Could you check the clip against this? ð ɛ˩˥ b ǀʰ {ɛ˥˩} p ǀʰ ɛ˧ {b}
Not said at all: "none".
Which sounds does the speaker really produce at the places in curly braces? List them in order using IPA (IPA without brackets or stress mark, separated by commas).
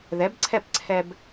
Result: ɛ˥˩, b